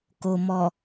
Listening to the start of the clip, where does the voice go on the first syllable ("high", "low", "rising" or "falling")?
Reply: low